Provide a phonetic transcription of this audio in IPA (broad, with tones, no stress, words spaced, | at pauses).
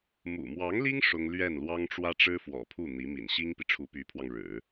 mṵ˨˩mwɑ˧˥ŋli˥ŋ ʂʊ˥ŋ lɥɛ˥˩nlwɑ˥ŋʈ͡ʂwä˥ ʈ͡ʂɻ̩˥fwɔ̰˨˩pʰu˥˩ n̪i˧˥mḭ˨˩n ɕi˥ŋpi˨ ʈ͡ʂʰu˧˥py˧˥pʰwɑ˧ŋɻɻ̩˨˩˦